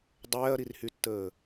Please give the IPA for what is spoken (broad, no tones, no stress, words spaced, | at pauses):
dˤɛːɐ̯ɾirhytːəː